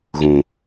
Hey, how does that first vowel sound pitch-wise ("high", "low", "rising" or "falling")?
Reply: low